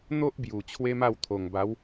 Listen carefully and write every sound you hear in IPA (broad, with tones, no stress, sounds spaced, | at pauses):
n̪ o˦ ʔ b j u˨˩ t͡ɕʰ w e˦ m a˥˧ w t̪ʰ o˨˩ ŋ b a˨˦ w